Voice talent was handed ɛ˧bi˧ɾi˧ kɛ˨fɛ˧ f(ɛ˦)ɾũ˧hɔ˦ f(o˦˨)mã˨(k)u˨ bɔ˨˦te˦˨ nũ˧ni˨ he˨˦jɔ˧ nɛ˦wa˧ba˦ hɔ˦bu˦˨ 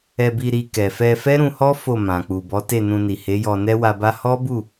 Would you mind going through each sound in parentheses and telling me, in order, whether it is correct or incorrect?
correct, correct, incorrect: k͡p

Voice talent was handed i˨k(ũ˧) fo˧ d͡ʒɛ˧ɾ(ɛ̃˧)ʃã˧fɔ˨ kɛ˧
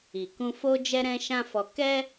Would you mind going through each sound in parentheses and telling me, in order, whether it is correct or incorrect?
correct, correct

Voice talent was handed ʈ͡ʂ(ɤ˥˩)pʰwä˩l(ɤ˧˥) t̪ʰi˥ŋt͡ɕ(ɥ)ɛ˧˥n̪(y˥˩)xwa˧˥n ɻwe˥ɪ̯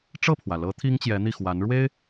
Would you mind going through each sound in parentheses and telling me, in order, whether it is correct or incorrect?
correct, correct, incorrect: j, incorrect: i˥˩

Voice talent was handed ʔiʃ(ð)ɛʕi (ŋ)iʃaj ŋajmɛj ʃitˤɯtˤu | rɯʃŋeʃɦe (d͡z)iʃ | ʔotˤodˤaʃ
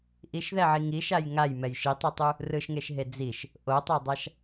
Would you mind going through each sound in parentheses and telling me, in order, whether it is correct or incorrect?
correct, correct, correct

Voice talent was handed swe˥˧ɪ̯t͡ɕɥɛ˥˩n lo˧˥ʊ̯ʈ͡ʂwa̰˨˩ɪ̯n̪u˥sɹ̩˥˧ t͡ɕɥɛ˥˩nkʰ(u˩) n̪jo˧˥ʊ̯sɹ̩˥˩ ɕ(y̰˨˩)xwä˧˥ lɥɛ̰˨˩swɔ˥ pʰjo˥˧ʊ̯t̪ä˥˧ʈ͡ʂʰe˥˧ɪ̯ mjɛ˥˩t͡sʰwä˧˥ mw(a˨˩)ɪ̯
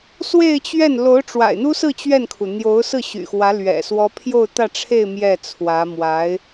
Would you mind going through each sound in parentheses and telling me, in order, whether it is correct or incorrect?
correct, correct, incorrect: a˧˥

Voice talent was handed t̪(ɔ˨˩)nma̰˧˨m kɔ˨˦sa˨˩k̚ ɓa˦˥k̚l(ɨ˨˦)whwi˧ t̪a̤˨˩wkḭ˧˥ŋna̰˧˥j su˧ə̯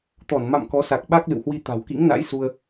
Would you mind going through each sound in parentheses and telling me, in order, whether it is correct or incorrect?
incorrect: ɔ˧˩, incorrect: ɨ̰˧˨

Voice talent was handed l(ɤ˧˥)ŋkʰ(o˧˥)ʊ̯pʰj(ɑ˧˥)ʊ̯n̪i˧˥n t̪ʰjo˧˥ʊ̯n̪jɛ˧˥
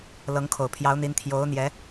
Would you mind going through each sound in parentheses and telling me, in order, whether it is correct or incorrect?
correct, incorrect: o˨˩, correct

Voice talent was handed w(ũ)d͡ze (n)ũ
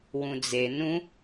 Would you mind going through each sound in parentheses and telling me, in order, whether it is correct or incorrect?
correct, correct

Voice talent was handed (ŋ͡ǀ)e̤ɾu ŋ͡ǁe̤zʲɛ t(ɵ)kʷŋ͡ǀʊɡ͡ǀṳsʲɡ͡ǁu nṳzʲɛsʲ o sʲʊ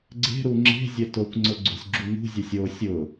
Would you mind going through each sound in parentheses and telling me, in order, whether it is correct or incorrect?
incorrect: ɡ͡ǀ, incorrect: o

